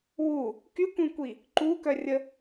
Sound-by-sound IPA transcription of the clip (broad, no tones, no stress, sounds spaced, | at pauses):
w u | k y kʷ ĩ kʷ i | ǃ u k œ rʲ ə